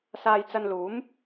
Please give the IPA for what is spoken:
s aː˧ j t͡s ɐ˧ n l uː˨˥ m

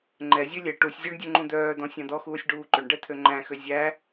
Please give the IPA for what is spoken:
ŋ͡ǃ ɛ zʲ ø lʲ ɛ ʈ u sʲ zʲ œ ɳ dʲ ø ŋ͡ǃ ũ d̪ œː d̪ ɔ̃ sʲ ɑ̃ d̪ ɔ x uː sʲ ɖ uː ǃ ø ɳ ɖ ɛ t̪ʰ ø ŋ͡ǃ æ̃ x ø zʲ æ

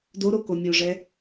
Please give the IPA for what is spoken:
d o ɾ o k o mʲ o ʐ ɛ

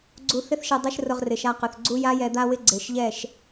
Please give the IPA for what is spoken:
ɡ͡ǀ u˧ θ ɪ˦ θ ʃ ɛ˧ dˤ ɛ˦ ʃ r ʊ˧ ʁ r ɪ˨ ʃ a˧ q ʊ˨ θ ɡ͡ǀ u˦ j a˦ j ɛ˧ d̪ a˦ w ɪ˦ ɡ͡ǀ e˨ ʃ ʎ ɛ˦˨ ʃ

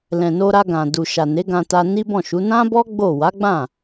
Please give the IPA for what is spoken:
l ɛ̃˨ n o˧ ɾ a˧ ɡ ã˨ d u˨ ʃ a˨ n e˨˦ ɡ ã˧ t a˧ n i˦ b ɔ̃˦˨ ʃ u˨˦ n ã˦ b ɔ˦ ɡ͡b o˦˨ w a˨˦ ɡ͡b ã˦˨

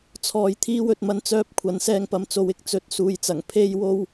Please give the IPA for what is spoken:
t͡sʰ ɔː˧ j t̪ʰ iː˥ w ɵ˨˥ t̚ m ɐ˥ n t͡s œː˥ p̚ kʷʰ ɐ˨˧ n s ɛː˧ ŋ p ɐ˨ m t͡s o˨˧ w ɪ˧ k̚ t͡s ɵ˨˥ t̚ s uː˨ j t͡s ɐ˨˩ ŋ pʰ e˥ j w o˥ w

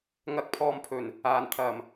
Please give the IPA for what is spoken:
ŋ ɐ˧ k̚ pʰ ɔː˧ m pʰ ɵ˨˩ n | aː˨˩ n t̪ʰ ɐ˨˩ m

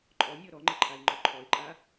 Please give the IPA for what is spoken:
ǃʼ ɔ nʲ ɔ ɾ ɔ ŋ͡ǃ ɪ ǃʰ a ɪ̯ ŋ͡ǃ ɔ ǃʰ ɔ ɪ̯ ǃʼ a

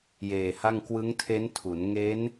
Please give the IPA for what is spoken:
j eː˨˩ h a˥˩ ŋ k w ɯ˦˥ ŋ tʰ e˦˥ n tʰ u˩˦ n ŋ e˦˥ n

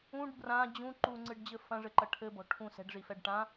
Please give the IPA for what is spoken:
ũ ɖ b r ã d͡ʑ ũ ǃ u ŋ͡ǀ ɨ ɖ d͡ʑ ɘ f ɐ̃ ʐ ɘ ǃ ɐ ʈʰ ɘ b ɔ̤ ʈʰ ũ s ɛ̤ ɖ ʐ i f ɛ ɖ ʈ ã

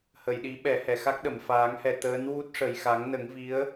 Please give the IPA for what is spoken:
h ə˨˩˨ j ɗ i˨˩˦ ɓ ɛ˨˩˦ h ɛ˨˩˨ x a˦˥ k̚ ɗ ə˨˩˨ m f aː˨˩˦ ŋ h ɛ˨˩ t̪ əː˧˥ n w u˦˥ t̚ ʂ ə˨˩ j x a˨˩˦ ŋ n ə˨˩˦ ŋ v i˧˥ ə̯

